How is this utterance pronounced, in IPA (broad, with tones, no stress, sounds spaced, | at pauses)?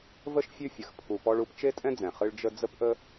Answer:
v ə˥ ʃ fʲ ʉ˦ fʲ ə˩ x pʰ u˨ p ɔ˦ ɭ u˦ p t͡ʃ e˥ tʼ ɛ̃˥ d͡z ɛ̃˩ χ ɨ˦ ɭ d͡ʒ ə˦ d͡z ə˥ p ʔ ə˥